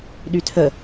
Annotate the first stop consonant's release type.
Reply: implosive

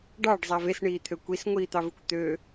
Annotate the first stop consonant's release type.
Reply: plain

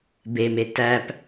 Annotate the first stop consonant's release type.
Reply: plain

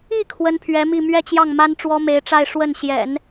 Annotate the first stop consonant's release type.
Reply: aspirated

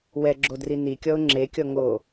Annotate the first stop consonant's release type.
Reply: click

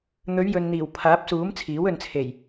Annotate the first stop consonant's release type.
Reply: aspirated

